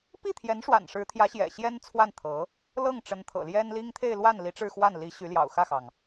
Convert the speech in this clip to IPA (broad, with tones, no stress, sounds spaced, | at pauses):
p i˥˩ t̪ʰ j ɛ˧˥ n ʂ w a̰˨˩ n ʂ ɻ̩˧˥ t̪ʰ j ä˧˥ ɕ j ɛ̰˨˩ ɕ j ɛ˥ n t͡sʰ w a˥˩ n t̪ʰ ɤ˧˥ | l ɤ˥˩ ŋ ʈ͡ʂ ə˧˥ n t̪ʰ ɤ̰˨˩ l j ɛ˥ n l i˥ ŋ t̪ʰ e˥˧ ɪ̯ l w a˥˩ n l i˧˥ ʈ͡ʂ ɻ̩˥˧ x w a˥˩ n l i˧˥ ɕ y˧˥ l j ɑ̰˨˩ ʊ̯ x ä˥˩ x ɑ˩ ŋ